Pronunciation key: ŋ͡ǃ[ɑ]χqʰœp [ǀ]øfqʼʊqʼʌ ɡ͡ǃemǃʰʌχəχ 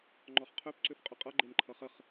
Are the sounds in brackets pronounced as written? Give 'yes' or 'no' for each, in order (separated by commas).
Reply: no, yes